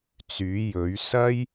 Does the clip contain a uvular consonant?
no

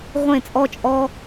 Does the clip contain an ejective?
yes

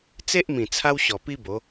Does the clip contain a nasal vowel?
yes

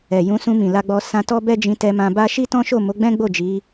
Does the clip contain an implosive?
no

